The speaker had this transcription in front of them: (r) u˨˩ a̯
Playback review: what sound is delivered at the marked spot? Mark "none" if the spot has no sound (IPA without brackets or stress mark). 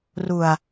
r